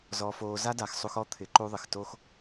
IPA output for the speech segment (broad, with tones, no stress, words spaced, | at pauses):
zɔ˧foː˧ za˦da˨xsˤu˧xɔ˦ t̪ʰɪ˨˦ǃu˧ðˤɪ˨xto˦x